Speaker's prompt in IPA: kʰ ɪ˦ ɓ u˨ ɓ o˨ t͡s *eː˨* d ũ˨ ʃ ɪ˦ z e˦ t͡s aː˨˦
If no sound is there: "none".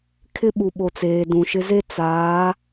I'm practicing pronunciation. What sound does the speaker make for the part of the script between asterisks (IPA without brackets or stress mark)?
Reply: eː˨